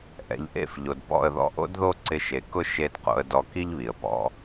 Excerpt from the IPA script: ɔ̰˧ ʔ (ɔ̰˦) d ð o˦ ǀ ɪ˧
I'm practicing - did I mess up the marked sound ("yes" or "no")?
yes